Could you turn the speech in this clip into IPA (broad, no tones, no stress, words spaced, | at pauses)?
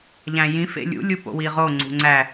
ʎæ̃jĩ fḛlʲṵ lʲupo̰wiʁo ŋ͡ǀṳŋ͡ǀæ